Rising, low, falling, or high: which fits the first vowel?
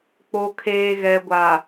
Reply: low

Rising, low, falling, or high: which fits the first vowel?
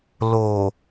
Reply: low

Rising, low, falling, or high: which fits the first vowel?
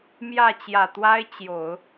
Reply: falling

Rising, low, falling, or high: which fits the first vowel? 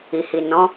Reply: low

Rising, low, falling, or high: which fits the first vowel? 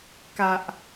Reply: low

